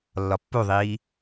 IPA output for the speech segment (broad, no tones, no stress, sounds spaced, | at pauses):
lː ɒ pː u ðˤ iː